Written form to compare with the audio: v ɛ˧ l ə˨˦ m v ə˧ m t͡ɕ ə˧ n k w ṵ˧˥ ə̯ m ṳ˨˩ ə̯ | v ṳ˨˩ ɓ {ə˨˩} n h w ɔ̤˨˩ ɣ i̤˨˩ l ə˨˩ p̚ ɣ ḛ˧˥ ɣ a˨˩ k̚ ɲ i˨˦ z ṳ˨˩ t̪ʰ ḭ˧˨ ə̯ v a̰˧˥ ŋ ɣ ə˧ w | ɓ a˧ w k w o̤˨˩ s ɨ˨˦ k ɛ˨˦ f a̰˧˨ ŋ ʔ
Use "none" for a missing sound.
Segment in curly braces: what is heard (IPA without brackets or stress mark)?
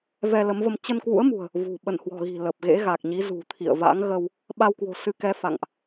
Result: ə˧˩